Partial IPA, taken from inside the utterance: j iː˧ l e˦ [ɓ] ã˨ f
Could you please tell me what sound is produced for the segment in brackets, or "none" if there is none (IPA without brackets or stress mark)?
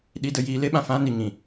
ɓ